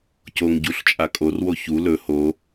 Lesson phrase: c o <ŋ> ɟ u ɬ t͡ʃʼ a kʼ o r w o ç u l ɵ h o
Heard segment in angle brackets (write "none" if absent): ŋ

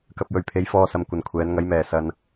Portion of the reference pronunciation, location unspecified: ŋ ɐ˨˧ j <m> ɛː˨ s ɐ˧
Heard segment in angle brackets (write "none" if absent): m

